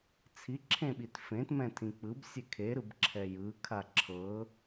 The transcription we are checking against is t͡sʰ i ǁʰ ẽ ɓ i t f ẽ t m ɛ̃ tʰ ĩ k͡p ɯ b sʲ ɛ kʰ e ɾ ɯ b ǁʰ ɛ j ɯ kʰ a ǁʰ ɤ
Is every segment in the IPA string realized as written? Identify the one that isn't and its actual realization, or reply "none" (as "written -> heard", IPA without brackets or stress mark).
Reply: none